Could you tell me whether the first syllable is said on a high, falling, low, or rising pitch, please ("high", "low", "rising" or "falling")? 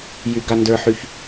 high